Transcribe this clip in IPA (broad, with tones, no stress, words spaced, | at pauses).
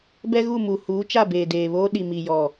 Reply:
bɛ˦ɣu˦˨ mu˨ huː˨˦t͡ʃa˦˨beː˨ deː˨βoː˦ɗi˨ mi˨ jɔ˨